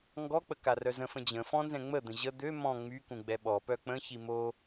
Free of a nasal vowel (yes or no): no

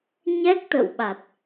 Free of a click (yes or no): yes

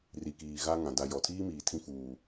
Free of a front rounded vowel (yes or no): yes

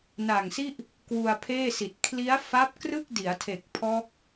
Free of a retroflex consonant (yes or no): yes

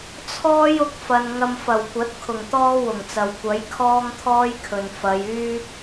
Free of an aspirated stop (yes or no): no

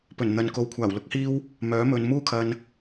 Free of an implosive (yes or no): yes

